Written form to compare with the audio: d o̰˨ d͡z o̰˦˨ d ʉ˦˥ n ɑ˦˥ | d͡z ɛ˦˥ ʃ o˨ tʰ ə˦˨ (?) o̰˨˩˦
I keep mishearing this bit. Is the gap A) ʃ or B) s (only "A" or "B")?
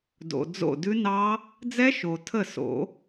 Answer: B